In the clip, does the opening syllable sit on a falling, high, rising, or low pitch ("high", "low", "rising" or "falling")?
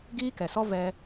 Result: high